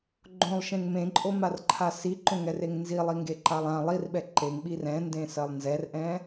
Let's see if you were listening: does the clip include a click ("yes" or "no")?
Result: yes